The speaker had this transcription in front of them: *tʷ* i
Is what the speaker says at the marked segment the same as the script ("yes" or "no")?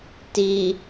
no